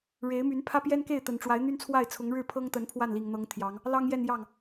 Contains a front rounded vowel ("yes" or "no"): yes